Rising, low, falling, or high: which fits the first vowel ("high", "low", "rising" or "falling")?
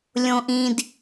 high